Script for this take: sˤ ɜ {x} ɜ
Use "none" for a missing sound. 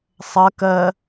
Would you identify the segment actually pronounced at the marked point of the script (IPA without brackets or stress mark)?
k